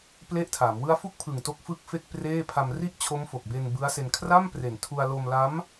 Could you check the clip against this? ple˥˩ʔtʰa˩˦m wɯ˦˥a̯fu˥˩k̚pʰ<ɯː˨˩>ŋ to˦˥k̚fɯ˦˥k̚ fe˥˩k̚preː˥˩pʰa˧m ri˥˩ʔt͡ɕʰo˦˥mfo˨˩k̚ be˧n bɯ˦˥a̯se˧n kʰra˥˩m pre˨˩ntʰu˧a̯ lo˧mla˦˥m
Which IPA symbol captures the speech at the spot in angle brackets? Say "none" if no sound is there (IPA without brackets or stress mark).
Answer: ɯ˨˩